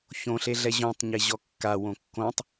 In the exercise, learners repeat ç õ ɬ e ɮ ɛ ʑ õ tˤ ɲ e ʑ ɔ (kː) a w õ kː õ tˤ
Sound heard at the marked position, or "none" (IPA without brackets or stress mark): kː